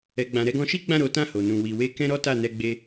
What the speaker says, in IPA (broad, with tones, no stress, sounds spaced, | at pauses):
ɛ˨ ɡ͡b ã˨ ɾ ɛ˧ ɡ ɔ̃˧ ʃ i˦ ɡ͡b ã˦˨ ɾ o˨˦ t ã˦˨ h o˨ n ũ˨ w i˨ w e˧ k ɛ̃˦ ɾ ɔ˦ t a˦˨ n ɛ˧ ɡ͡b e˧